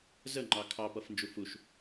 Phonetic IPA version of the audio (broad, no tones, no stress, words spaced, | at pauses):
zəŋ͡ǃɑ kʰɑpʌfnd͡ʒu fuʃ